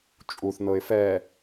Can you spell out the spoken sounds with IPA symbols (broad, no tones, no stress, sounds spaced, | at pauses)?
t͡ʃʼ u θ n̪ ɤ ɪ̯ f ɛ